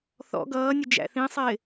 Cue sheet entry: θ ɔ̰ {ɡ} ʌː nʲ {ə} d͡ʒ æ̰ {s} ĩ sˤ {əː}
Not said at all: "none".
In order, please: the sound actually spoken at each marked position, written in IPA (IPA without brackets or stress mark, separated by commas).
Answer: ɡ, ə, θ, ɪː